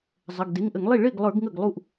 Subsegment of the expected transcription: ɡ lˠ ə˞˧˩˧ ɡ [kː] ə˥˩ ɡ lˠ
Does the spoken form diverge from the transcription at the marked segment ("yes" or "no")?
yes